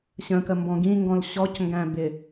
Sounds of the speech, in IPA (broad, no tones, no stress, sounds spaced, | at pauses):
ɕ ə̃ k ə m b ɔ̃ ɡ ĩ ŋ ɡ ɔ̃ l ɕ ɔ c ŋ ɡ æ̃ b ɪ